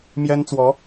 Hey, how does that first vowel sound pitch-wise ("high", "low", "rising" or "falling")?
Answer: high